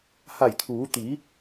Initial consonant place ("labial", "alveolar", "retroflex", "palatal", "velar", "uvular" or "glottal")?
glottal